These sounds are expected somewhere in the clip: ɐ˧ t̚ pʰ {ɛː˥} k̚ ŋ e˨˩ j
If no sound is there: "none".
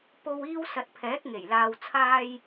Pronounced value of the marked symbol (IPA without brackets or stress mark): ɛː˨˥